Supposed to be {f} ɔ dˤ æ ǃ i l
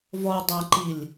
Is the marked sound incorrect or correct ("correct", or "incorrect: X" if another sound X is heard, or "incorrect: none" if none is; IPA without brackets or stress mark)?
incorrect: v